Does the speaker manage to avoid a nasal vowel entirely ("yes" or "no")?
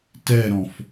no